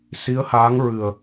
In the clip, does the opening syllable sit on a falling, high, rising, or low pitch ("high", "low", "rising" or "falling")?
rising